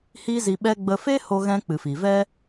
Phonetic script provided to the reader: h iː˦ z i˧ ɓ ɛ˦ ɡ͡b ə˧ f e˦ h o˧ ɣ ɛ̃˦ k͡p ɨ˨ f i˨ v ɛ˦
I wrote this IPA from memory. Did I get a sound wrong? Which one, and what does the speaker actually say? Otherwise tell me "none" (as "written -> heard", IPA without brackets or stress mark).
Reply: none